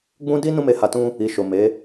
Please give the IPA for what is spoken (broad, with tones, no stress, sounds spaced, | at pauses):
ɡ͡b ũ˦ d i˦ n ũ˦ m e˧ h a˧ t ũ˦ | i˨ ʃ o˨ m e˨˦